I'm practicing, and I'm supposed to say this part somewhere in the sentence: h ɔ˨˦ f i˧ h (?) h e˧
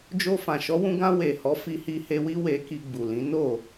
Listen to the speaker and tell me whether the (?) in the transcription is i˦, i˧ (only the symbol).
i˧